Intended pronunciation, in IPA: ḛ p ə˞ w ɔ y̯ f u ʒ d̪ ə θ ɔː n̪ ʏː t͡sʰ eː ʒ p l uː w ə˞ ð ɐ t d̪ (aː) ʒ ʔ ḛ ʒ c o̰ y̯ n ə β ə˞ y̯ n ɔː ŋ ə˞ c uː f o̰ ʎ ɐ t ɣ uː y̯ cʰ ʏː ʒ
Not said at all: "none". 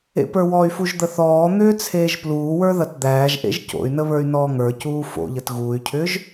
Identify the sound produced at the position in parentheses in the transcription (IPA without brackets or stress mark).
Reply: æː